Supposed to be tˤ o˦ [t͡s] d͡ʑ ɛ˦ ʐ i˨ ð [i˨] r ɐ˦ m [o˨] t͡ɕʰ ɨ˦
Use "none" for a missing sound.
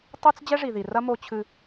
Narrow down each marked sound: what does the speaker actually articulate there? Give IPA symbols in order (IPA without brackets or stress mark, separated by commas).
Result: t͡s, i˨, o˦